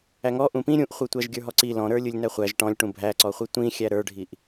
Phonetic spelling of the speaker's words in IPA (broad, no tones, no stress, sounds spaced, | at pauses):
æ ŋ ɔ ʔ ũ p ĩ ɾʲ ũ ʔ χʷ ɯ tʷ æ ʒ ɡʲ ə˞ ɦ ɔ ǀ i l ɔ̃ ɾ ə˞ lʲ ɯ lʲ n æ χʷ æ ʒ ʈ ɔ̃ lʲ ʈ ũ bʱ æ ǀ ɔ χʷ i tʷ ĩ xʲ æ ɾ ə˞ ɖʱ i ʔ